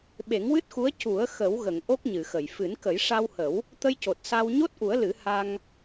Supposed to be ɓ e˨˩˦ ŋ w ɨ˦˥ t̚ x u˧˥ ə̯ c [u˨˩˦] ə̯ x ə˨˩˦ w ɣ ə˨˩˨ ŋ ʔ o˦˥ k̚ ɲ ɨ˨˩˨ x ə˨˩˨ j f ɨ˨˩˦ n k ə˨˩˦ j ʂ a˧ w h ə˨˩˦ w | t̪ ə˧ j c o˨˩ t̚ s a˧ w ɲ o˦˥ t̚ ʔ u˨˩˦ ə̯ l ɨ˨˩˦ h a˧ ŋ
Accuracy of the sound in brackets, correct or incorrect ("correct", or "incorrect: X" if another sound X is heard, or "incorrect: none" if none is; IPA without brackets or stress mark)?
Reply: correct